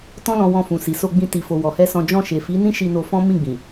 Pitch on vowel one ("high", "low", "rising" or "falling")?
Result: high